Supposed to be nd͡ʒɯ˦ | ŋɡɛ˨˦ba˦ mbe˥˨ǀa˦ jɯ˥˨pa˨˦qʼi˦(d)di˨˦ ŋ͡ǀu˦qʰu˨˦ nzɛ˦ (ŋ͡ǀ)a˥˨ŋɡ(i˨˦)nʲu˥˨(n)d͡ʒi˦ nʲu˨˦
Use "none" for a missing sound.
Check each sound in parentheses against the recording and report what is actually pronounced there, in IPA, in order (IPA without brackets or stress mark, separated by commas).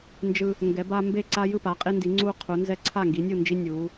n, ǀʰ, i˨˦, n